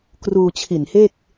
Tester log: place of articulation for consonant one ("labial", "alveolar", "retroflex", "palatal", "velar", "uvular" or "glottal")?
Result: velar